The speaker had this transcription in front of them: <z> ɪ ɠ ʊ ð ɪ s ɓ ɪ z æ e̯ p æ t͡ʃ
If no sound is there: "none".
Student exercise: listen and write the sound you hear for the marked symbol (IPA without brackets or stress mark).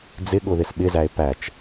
d͡z